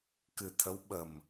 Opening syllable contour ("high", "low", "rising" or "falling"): low